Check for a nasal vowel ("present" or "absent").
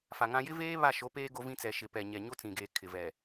present